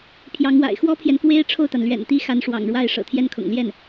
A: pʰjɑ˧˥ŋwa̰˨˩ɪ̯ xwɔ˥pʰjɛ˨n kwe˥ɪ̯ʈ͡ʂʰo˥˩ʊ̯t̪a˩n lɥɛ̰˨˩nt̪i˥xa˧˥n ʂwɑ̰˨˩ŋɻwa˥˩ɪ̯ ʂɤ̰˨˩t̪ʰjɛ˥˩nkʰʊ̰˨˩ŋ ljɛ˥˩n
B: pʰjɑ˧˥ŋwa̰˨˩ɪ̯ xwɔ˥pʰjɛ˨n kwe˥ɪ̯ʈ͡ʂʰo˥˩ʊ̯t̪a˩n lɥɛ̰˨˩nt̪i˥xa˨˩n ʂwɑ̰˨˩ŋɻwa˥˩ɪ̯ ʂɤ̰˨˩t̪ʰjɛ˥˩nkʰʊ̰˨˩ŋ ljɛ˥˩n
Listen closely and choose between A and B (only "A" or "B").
A